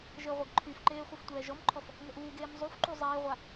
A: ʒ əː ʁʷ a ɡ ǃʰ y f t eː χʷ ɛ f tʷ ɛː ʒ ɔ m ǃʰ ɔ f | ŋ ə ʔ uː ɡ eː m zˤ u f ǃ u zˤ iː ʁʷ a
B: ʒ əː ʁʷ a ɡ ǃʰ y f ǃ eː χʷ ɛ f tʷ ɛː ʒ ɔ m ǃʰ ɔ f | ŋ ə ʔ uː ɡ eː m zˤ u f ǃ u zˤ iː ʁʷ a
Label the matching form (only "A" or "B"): B